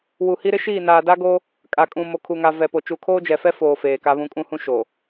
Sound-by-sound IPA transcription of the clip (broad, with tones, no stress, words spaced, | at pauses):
wu˨hi˦ɾɪ˦ʃiː˦˨ naː˨da˦ɡo˦ | kʼa˨ kʼũ˨mo˨kʰu˨ŋa˨ vɛ˨po˨ t͡ʃu˨kʰoː˦d͡ʒɛ˨fɛ˦ foː˨ feː˨ka˦βũ˦ kʼũ˦hũ˦ ʃo˨